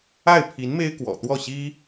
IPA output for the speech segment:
a˥˩ ɪ̯ pʰ i˧˥ n m e˥ ɪ̯ k w ɔ̰˨˩ t̪ w ɔ˥˩ ɕ i˥

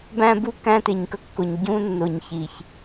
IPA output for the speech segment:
b æ̃˦ b u˦ k æ̃˦ t ɪ˨ ɲ k ə˦ kː ʊ˨ ɲ ɟ ũ˦ nː ʊ˨ ɲ ç i˨ ç

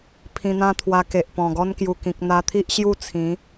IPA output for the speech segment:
pʰ ĩ˧ n̪ ã˦ t̪ʰ w a˧ k e˨ ʔ p ɔ̃˨˩ ɡ ɔ˦ n k j u˨˩ k ĩ˨ k̚ n̪ a˧ t̪ʰ i˦ ʔ ɕ j u˥˧ t͡sʰ ĩ˨˦

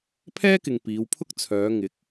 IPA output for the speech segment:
pʰ ɛː˥ k ɪ˨ ŋ p iː˨˧ w pʰ ʊ˥ k̚ t͡sʰ œː˨˧ ŋ ɪ˨˥ k̚

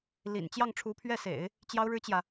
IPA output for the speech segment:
l ḭ˨˩ n t͡ɕ j ɑ˥˩ ŋ ʈ͡ʂʰ u˧˥ pʰ ɥ ɛ˥˩ s ḛ˨˩˦ ɪ̯ | t͡ɕ j ɑ˥ ʊ̯ ɻ ɻ̩˥ t͡ɕ j ä˨

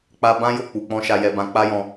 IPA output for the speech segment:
k͡p a˧ b ã˦ j o˦˨ k͡p u˨ k͡p ɔ̃˧ ʃ a˧ j ɛ˧ b ã˧ k͡p a˦ j ɔ̃˧

